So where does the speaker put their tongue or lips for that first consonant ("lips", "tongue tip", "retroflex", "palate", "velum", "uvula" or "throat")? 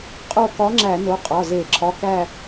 uvula